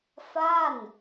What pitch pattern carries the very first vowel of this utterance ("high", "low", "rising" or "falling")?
falling